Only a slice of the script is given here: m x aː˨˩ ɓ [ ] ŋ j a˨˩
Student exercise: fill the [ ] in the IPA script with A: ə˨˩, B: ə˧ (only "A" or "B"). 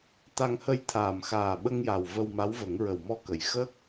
B